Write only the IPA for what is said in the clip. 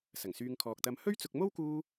s ɐ˨˩ ŋ s yː˧ ŋ kʰ ɔː˨ k̚ t̪ ɐ˨˧ m h ɵ˥ ɥ t͡s ʊ˧ k̚ m o˥ w k uː˧

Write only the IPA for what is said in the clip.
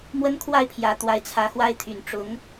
m w ə˥ n kʰ w a˥˩ ɪ̯ pʰ j ä˧˥ t̪ w a˧˥ ɪ̯ t͡sʰ ä˧˥ x w a˥ ɪ̯ t̪ʰ y˨˩ n ʈ͡ʂ ʊ˧˥ ŋ

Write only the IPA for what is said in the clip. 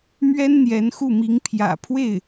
m ɥ ɛ˥ n n̪ j ɛ˧˥ n x u˥˩ m i˧˥ ŋ pʰ j ä̰˨˩ pʰ w e˥˩ ɪ̯

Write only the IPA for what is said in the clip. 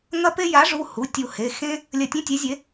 ŋ ɐ˦ p e˦ j a˩˥ ʐ u˩˧˩ h u˩˧˩ tʲ u˧˩ h e˩˧˩ x ẽ˦ | lʲ ɐ˧˩ tʲ ẽ˦ tʲ e˩˥ zʲ e˩˥

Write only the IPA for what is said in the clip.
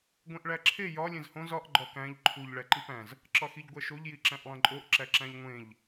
ɡʷ ẽ ʔ ɭ æ ǁʰ e j ɒ lʲ ẽ z h õ z ɒ ʔ ɡ͡ǃ ɒ k æ̃ ʎ ǃʰ u ʎ ɭ æ ǃ i p æ̃ z | ǁ ɒ x i ʎ ɡʷ æ ʃ o ʎ j i ǁ æ̃ ʔ lˠ ẽ ǃʼ o ʔ ǁ æ ǁ æ̃ ʎ ŋʷ ẽ ʎ

